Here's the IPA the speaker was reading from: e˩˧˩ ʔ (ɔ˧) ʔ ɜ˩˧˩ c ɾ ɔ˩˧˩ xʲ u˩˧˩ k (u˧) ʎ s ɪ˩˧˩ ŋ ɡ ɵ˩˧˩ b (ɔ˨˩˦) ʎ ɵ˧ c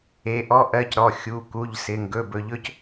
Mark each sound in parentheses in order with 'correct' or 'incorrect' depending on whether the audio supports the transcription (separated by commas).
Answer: correct, incorrect, incorrect